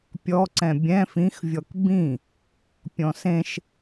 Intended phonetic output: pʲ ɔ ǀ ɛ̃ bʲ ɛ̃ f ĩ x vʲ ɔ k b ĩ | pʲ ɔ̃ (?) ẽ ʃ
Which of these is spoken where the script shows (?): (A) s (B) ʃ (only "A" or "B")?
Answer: A